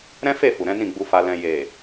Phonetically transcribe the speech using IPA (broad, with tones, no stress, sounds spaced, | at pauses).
ɾ ɛ̃˦ f e˦˨ f u˨ ɾ ɛ̃˨˦ n ĩ˦˨ ɡ͡b u˧ f a˧ l ɛ̃˨ j e˨